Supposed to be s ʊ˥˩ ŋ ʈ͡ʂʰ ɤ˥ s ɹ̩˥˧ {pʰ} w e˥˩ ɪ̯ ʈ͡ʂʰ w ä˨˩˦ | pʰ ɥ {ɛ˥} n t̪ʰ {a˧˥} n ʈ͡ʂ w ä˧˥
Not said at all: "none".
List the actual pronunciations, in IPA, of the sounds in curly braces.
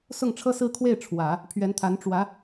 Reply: kʰ, ɛ˧˥, a˧˥

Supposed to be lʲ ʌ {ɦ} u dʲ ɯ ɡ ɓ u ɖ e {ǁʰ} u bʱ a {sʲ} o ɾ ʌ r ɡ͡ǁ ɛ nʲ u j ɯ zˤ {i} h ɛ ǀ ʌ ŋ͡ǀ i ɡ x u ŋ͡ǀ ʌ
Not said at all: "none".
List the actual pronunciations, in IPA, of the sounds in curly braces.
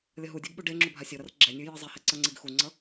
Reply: ɦ, ŋ͡ǁ, sʲ, i

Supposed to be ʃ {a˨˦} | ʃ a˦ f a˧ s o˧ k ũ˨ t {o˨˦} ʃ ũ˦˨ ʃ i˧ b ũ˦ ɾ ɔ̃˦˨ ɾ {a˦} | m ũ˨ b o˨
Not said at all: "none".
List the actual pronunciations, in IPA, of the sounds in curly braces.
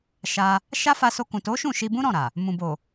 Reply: a˧, o˨˦, a˨

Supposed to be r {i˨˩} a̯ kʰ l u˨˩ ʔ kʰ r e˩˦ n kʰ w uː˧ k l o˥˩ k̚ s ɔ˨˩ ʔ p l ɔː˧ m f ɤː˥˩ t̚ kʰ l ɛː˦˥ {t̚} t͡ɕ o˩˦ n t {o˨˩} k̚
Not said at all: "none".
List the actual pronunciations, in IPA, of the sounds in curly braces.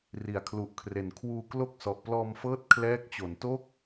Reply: i˩˦, k̚, o˦˥

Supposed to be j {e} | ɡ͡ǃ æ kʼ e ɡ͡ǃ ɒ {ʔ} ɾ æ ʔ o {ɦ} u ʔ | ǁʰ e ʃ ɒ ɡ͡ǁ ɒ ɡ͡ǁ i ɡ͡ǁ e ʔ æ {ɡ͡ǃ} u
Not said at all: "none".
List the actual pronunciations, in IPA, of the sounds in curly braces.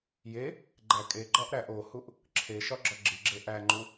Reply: e, ʔ, h, ŋ͡ǃ

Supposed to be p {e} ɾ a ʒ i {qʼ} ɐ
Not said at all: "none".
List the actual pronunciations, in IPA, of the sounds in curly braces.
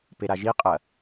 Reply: e, qʼ

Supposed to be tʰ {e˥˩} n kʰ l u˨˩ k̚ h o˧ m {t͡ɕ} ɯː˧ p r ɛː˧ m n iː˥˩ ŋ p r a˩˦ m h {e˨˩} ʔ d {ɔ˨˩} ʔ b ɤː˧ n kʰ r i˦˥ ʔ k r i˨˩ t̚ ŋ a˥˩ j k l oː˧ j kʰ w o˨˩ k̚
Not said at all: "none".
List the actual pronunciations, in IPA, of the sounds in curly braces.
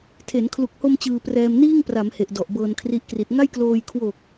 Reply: e˩˦, t͡ɕ, e˨˩, ɔ˨˩

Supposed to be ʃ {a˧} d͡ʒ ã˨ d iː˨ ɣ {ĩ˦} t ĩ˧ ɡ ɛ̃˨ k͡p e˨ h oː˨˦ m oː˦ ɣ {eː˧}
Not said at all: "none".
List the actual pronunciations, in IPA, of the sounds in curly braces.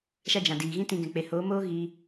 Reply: a˧, ĩ˦, iː˧

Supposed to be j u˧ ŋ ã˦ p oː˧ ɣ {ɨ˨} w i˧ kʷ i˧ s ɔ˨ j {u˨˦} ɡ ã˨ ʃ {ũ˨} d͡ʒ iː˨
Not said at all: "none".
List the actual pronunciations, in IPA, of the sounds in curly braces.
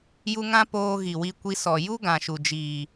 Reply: i˨, u˦, u˨

